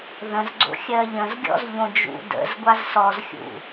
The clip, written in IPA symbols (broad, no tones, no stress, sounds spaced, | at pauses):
ð ə̃ z ɡ͡ǀ o̰ xʲ ɜ ʎ ə̃ z ɡʲ ɔ̰ z ʎ õ d͡ʒ ṵ d ə̰ z ɡʷ a z s ɔ z xʲ ṵ